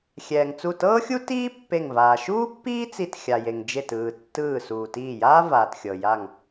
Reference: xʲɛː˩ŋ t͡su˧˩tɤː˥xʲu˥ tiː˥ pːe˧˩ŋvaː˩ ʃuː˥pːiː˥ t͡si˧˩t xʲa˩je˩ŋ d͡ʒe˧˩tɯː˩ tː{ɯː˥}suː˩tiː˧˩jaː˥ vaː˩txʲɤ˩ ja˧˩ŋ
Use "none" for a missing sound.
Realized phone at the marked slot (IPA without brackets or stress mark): ɯː˧˩